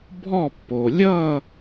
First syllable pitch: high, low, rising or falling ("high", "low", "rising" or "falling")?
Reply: falling